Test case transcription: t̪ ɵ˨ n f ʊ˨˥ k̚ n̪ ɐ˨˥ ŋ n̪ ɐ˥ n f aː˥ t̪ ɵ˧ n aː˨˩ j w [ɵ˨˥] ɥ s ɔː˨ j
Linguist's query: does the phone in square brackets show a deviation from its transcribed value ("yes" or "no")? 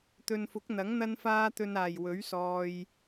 no